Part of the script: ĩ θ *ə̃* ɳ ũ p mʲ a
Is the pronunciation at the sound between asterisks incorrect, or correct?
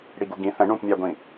correct